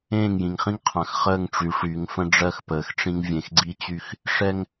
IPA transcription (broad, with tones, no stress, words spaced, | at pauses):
ẽː˦˨ŋjĩ˨ŋχĩ˦ŋqʰã˨x χəː˦˨ŋʈ͡ʂy˨ʂy˨˦ŋfə̃˦ ɖ͡ʐɜ˦xpəː˨xʈ͡ʂĩ˦ŋ vʲẽ˨xɡ͡ǀi˦t͡ɕy˦x | ʂɛ˦ŋ